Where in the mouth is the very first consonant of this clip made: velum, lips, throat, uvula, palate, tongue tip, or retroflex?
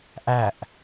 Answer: throat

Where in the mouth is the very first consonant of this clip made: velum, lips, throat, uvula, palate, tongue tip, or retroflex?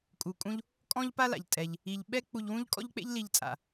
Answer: velum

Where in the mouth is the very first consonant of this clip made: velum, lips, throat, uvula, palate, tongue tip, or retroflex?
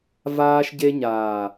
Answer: lips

